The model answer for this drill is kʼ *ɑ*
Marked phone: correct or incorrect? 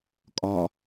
incorrect